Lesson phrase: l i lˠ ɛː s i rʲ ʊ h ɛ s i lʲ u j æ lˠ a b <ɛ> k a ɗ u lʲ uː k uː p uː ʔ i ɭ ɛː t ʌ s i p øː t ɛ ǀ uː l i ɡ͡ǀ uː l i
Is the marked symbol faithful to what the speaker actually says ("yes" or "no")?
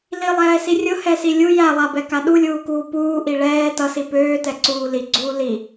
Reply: yes